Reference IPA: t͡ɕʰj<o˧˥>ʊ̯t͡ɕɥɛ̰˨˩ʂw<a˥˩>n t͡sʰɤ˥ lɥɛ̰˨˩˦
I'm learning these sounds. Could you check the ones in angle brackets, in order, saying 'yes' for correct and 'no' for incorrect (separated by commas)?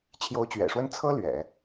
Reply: yes, no